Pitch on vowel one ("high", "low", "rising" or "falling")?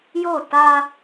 falling